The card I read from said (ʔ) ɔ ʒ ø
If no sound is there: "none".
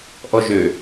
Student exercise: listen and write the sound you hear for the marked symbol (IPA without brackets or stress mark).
ʔ